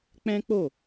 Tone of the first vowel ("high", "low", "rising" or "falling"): high